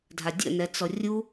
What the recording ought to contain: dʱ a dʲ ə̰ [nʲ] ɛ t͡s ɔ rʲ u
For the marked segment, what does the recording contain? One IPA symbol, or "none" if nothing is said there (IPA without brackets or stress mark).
n